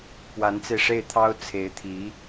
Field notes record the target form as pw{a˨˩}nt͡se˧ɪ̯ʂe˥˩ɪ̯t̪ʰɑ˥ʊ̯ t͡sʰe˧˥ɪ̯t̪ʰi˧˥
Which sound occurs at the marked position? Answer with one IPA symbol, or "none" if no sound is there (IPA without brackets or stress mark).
a˧˥